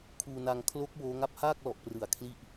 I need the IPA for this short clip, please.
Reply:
kʰ uː˧ n a˧ ŋ kʰ l o˦˥ k̚ w oː˦˥ ŋ a˦˥ p̚ h aː˥˩ k̚ l ɔ˨˩ ʔ p r ɯ˨˩ a̯ kʰ l i˦˥ ʔ

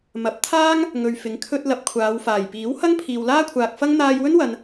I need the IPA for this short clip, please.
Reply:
m ɐ˨˥ p̚ t̪ʰ aː˥ ŋ | ŋ ɵ˨ ɥ f ɪ˨˥ ŋ kʰ ɵ˧ t̚ l ɐ˨ p̚ kʷʰ aː˨˧ w f aː˨˩ j p iː˨˥ w h ɐ˥ ŋ pʰ iː˨ w l aː˥ kʷʰ aː˨ k̚ f ɐ˥ ŋ n̪ aː˧ j w ɵ˥ n w ɐ˨ n

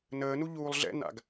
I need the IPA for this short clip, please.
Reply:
n əː n u ʎ uː lˠ ɮ ɛ̰ n a̰ ɡ

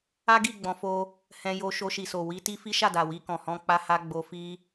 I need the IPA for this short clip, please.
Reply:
a˦ ɡ i˦˨ ɡ͡b ɔ̃˧ f o˦ | h ɛ̃˧ j o˧ ʃ o˧ ʃ i˨ s o˨ w i˧ t i˦ f i˦ ʃ a˦˨ d a˨ w i˧ k ɔ̃˨ h ɔ̃˧ k͡p a˦ h a˦ ɡ͡b o˧ f i˦

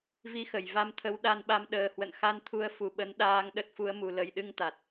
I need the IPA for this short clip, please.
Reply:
v i˧ x ə˧˩ j v a˧ m t̪ʰ ə˨˦ w ɗ a˧ n ɓ a˧ m ɗ əː˨˩ h w ə̰˧˨ n x a˧ n t̪ʰ u˧ ə̯ f u˧˩ ɓ ə˨˦ n ɗ aː˧ ŋ ɗ ə˦˥ t̚ f u˨˦ ə̯ m u˨˩ l ə˨˩ j ɗ ɨ˧ ŋ t̪ a˨˩ t̚

